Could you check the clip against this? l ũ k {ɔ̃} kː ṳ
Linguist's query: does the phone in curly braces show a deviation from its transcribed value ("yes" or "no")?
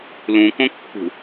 yes